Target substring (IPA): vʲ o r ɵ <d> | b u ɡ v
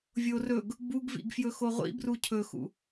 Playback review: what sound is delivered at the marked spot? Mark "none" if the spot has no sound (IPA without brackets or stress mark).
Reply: ɡ